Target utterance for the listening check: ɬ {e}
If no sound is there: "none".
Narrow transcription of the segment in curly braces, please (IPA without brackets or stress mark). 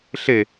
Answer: e